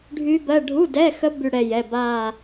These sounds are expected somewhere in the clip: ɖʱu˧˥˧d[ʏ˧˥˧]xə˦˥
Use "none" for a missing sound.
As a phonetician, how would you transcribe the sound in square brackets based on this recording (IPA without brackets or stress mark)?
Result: ɛ˧˥˧